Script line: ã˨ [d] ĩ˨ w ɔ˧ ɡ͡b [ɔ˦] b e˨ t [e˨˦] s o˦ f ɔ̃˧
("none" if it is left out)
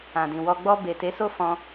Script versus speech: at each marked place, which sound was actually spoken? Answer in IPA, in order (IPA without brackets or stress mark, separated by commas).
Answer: d, ɔ˧, e˨˦